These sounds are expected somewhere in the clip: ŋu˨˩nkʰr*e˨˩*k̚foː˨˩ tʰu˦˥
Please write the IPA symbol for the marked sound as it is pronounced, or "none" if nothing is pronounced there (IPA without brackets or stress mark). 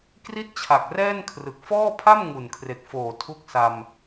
e˨˩